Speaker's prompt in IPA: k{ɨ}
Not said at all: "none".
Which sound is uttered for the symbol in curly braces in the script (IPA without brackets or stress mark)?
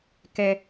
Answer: ɛ